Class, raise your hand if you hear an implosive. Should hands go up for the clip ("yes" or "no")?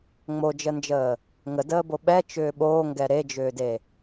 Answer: yes